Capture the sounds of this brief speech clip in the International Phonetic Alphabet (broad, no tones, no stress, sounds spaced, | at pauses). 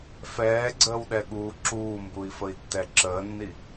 f ɛː ɡ͡ǀ əː w ɗ ɛ ɠ uː ǁ uː m b u i̯ f ə i̯ tː ɛ ǁ əː nː i